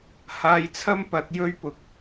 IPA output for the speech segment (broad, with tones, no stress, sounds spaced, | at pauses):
h aː˧ j t͡sʰ ɐ˥ m p ɐ˨˥ t̚ j ɵ˥ ɥ p ʊ˨ k̚